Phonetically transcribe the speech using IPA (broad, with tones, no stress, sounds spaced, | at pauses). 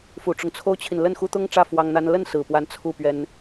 f u˨˩ ʈ͡ʂ ʊ˦ ŋ t͡sʰ o˥ ʊ̯ t͡ɕʰ i˨ n l ə˥˩ n x u˥ t̪ ʊ˥ ŋ ʈ͡ʂ ä˥˩ f w ɑ˥ ŋ n̪ a˥ n l ə˥˩ n s ɹ̩˨˩ p w a˧˥ n t͡sʰ u˥˩ p ɥ ɛ˥ n